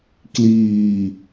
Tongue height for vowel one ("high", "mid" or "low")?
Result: high